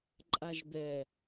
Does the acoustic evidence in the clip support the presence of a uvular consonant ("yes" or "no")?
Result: no